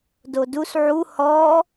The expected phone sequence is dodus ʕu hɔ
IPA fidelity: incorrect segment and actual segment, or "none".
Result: none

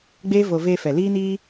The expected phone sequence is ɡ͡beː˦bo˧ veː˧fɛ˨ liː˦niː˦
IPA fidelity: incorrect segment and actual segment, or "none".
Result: b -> v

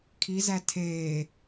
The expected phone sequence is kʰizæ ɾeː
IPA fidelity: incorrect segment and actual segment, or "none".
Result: ɾ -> tʰ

